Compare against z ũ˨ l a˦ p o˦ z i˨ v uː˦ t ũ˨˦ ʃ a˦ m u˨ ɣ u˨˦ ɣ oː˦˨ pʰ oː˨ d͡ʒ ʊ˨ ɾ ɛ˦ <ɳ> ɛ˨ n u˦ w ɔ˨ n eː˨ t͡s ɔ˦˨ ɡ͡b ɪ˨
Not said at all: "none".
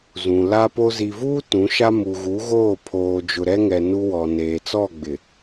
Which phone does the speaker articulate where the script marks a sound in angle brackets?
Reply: ŋ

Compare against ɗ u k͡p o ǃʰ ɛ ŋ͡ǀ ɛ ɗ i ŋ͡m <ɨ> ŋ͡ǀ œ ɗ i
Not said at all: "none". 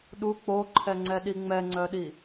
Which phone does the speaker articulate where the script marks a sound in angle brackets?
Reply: ɛ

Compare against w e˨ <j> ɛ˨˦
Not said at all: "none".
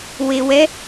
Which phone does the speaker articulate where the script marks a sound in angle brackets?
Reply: w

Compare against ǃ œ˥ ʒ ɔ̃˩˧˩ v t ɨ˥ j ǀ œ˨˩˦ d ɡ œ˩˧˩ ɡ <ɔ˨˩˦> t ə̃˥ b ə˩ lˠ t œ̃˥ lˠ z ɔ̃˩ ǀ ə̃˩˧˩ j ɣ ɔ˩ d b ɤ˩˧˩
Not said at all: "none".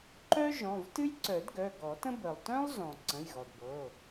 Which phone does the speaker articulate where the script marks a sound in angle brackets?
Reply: ɔ˨˩˦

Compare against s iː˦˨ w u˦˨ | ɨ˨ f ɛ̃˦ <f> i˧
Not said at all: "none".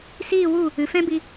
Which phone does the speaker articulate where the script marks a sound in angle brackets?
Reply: b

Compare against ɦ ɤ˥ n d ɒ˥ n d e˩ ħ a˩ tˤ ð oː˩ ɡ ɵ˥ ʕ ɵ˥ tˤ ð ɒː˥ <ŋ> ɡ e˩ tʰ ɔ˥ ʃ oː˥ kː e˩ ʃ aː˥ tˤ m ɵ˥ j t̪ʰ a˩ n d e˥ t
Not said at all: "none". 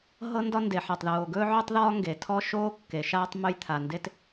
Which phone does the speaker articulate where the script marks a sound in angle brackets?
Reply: ŋ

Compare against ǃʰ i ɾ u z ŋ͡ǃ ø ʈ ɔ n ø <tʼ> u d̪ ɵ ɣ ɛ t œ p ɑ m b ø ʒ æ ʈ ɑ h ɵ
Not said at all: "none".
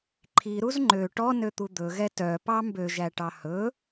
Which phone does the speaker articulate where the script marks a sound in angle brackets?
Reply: t̪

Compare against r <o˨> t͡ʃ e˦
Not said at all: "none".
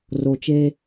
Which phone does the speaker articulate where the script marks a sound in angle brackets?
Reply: o˨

